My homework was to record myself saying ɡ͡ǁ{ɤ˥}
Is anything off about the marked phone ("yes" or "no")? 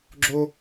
yes